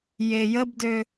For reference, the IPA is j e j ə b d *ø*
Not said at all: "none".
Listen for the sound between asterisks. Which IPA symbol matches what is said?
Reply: ø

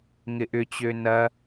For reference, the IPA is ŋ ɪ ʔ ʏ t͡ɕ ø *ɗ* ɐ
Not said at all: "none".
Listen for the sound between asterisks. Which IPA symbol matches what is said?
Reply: n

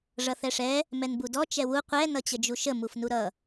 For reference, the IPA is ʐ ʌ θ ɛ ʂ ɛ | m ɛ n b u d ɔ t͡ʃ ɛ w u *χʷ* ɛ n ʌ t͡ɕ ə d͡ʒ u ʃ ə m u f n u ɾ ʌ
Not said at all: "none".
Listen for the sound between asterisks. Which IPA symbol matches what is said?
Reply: qʷ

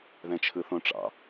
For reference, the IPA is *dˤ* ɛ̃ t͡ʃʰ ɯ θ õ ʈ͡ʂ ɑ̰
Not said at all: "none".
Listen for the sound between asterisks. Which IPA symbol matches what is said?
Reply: ð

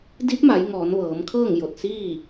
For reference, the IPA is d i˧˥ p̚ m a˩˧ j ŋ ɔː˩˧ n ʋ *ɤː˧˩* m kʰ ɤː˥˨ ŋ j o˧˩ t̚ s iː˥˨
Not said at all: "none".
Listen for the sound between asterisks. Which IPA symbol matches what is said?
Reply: ɤː˩˧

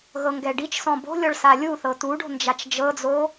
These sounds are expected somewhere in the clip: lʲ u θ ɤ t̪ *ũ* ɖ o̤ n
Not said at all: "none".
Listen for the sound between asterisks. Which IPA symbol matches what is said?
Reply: u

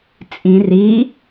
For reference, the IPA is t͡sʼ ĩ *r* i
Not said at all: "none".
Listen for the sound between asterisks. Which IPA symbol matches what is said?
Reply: r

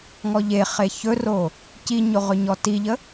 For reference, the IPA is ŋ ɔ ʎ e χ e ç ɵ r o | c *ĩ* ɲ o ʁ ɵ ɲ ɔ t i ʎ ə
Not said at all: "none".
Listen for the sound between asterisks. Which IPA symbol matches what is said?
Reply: i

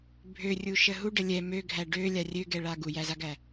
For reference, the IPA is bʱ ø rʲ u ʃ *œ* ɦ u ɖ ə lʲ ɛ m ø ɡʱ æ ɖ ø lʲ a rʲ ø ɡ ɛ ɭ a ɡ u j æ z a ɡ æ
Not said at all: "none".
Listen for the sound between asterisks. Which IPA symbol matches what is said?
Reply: ə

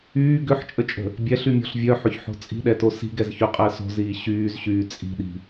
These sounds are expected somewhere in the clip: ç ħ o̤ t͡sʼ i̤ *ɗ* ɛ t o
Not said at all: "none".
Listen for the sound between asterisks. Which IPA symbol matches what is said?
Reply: ɗ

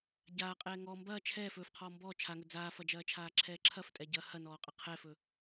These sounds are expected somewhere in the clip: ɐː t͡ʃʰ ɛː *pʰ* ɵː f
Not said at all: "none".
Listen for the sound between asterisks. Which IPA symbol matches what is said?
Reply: f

